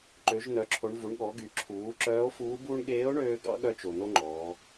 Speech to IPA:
ǃ ø˩˧ ʒ n̪ œ˩˧ ǁʰ o˩˧ ɳ v u˩˧ ɳ ɠ ɔ˩˧ ɡ y˩˧ ǁʰ uː˩˧ ǁ œː˧˥ o̯ f uː˧˥ b uː˥ ɳ ɠ eː˧˥ o̯ ɳ øː˧ ɡ ɑ̰˧˥ ɠ œ˧˥ t͡ʃ o˩ n̪ o˥ ŋ͡ǃ ɔː˩˧

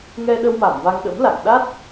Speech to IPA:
ŋ ɛ˧ ɗ ə˧ w m a˧˩ m v a˧ ŋ ɗ ə̰˧˥ m l a̰˧˨ ŋ ɗ a˦˥ t̚

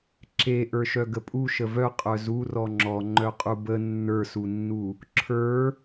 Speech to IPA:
ǁ e ʔ ə˞ ʃ œ ɡ ə pʼ u ʃ ə v œ qʼ œ z u r ɔ ŋ͡ǁ ɔ ŋ͡ǃ œ qʼ u b ə nː ə˞ s u nː u | ǁʰ ə˞

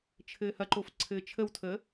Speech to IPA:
t͡ʃʰ ɘː h ɐ ǃ o f ǀʰ ɘː t͡ʃʰ ə w tʰ əː

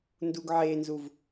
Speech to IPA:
n d u ɡ ʕ e n z u v

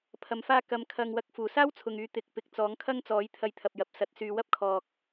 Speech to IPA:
pʰ ɐ˨ m f aː˧ k ɐ˨˧ m kʰ ɐ˨ ŋ w ɐ˨˥ k̚ f uː˨˩ s aː˥ w t͡sʰ ʊ˨ ŋ yː˨˧ t̪ ɪ˨˥ k̚ p ɪ˨˥ k̚ t͡s ɔː˨˥ ŋ kʰ ɐ˥ ŋ t͡s ɔː˨˥ j t̪ʰ ɐ˧ j t̪ʰ ɐ˨ p̚ j ɐ˨˥ p̚ s ɐ˨˥ t̚ s yː˨ w ɐ˥ p̚ kʰ ɔː˨ k̚

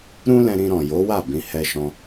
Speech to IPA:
ɾ ũ˦ l ɛ̃˧ ɾ ĩ˧ ɾ ɔ̃˨ j o˨˦ w a˦˨ b ĩ˧ h ɛ˧ ʃ ɔ̃˧

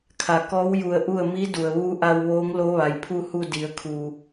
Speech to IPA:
kʰ a˩ k ɔː˧˥ w j u˧˩ ə̯ ʔ u˥˨ ə̯ m i˧˥ d u˩ ə̯ ʋ uː˧˥ ʔ a˧ w ʋ oː˧˥ ŋ l o˧˥ ʋ a˩ j pʰ u˥˨ h u˥˨ d i˩˧ ə̯ kʰ uː˩

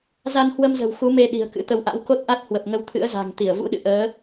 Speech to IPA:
z a˧ n h w ə˧ m z ə̤˨˩ w x u˨˦ m e˧ ɗ i̤˨˩ ə̯ k ɨ̰˧˥ t̪ ə˨˦ w ʔ a̰˧˥ w k o˦˥ t̚ ʔ a˦˥ t̚ h w ə˨˩ p̚ ŋ ə˧ w t̪ʰ ɨ̰˧˥ ə̯ z a̤˨˩ ŋ t̪ i˧˩ ə̯ v ṵ˧˥ ɗ ɨ̰˧˨ ʔ əː˨˦

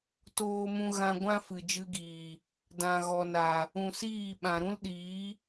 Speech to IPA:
t oː˧ m ũ˧ ɣ ã˧ ɡʷ ã˦ f ɨ˨ d͡ʒ ɨ˧ ɡ iː˨ | d ã˨ ɣ ɔ˨ n a˨ | ũ˨ s iː˦˨ ɓ ã˨ ɾ ũ˦ l ɗ iː˨˦

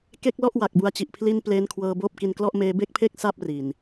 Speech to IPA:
k e˥˩ k̚ l ɔ˥˩ ʔ w a˨˩ k̚ b u˦˥ a̯ t͡ɕ i˨˩ ʔ pʰ l i˥˩ n p l eː˦˥ n kʰ w ɤː˧ b oː˥˩ p̚ k i˧ n k l ɔ˥˩ ʔ m eː˧ b e˥˩ k̚ pʰ e˥˩ k̚ s a˥˩ p̚ r i˨˩ n

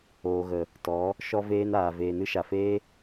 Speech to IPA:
oː˨ ɣ ə˨ | t ɔ˨˦ | ʃ ɔ˧ v eː˧ n aː˨ v eː˨ n ɨ˧ ʃ a˨ f eː˦

